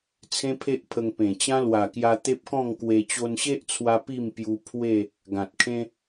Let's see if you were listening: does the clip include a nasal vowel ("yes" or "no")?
yes